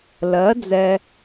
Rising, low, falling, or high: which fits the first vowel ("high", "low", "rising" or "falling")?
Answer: rising